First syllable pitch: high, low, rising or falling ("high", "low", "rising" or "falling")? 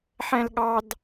high